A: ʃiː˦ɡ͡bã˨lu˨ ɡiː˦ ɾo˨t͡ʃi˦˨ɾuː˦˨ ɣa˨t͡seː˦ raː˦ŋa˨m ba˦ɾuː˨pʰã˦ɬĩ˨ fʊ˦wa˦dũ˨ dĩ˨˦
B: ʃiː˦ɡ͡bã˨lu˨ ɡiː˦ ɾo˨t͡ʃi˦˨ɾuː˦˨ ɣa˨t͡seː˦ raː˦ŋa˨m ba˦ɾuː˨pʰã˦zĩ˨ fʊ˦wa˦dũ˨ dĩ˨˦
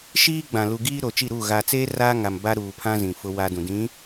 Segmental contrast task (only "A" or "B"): B